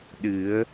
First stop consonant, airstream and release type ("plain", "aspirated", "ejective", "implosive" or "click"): implosive